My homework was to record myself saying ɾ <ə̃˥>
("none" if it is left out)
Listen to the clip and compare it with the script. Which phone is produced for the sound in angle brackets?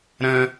ə̃˥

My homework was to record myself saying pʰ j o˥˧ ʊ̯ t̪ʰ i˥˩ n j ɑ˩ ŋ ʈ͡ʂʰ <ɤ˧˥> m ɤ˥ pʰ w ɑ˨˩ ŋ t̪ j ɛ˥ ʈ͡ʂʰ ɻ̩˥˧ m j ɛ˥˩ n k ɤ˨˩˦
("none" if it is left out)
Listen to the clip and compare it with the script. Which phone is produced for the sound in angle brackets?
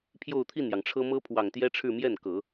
ɤ˥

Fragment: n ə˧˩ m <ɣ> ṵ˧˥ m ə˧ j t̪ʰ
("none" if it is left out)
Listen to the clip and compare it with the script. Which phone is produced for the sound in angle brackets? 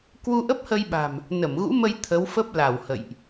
ɣ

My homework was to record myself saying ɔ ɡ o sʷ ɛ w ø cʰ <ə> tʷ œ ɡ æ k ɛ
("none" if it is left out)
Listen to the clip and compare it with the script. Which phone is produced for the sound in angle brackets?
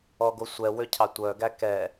ɑ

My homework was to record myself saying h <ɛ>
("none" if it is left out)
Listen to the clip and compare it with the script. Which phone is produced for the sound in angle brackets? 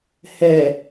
ɛ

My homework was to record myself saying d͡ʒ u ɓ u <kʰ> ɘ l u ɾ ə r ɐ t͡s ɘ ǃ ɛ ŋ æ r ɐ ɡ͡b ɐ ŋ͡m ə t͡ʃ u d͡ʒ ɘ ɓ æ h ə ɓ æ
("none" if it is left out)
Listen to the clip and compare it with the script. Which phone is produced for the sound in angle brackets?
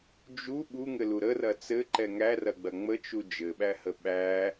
ŋ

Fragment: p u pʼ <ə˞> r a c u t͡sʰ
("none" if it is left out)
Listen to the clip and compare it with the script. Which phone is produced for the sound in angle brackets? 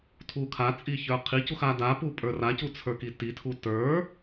ə˞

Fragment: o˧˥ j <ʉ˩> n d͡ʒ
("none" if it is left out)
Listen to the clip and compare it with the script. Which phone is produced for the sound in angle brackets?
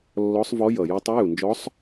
u˩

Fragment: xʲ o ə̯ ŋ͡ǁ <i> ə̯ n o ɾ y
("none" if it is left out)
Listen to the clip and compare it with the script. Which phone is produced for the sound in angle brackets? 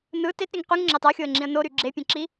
ĩ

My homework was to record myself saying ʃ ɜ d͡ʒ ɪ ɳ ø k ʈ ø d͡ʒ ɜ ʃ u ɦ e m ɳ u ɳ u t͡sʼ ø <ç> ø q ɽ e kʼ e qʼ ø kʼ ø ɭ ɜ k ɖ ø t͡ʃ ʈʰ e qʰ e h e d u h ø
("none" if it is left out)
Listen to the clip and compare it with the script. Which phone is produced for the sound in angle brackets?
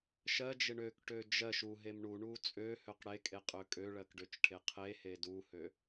h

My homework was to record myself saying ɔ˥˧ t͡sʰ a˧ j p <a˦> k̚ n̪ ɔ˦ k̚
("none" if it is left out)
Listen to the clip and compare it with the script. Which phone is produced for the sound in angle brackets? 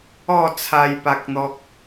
a˦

